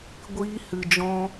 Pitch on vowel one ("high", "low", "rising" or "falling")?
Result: high